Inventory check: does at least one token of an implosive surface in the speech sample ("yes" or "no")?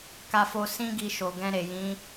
no